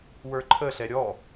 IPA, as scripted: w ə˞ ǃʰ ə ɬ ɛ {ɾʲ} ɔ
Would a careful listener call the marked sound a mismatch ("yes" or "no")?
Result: no